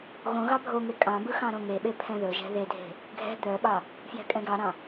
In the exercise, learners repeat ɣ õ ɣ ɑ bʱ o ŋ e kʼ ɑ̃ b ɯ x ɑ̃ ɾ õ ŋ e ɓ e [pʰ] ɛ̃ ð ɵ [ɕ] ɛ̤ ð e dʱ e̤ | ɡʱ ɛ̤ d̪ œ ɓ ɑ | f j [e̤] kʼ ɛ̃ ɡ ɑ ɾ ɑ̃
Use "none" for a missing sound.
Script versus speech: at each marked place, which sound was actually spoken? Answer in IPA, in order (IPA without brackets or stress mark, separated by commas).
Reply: pʰ, ʒ, ɛ̤